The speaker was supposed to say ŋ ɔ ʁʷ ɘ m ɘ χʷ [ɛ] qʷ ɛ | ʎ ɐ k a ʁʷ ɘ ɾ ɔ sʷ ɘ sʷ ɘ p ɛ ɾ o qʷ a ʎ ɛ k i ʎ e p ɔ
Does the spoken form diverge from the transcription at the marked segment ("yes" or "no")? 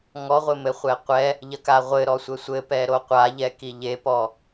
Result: no